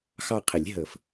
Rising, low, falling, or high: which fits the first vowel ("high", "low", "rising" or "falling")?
falling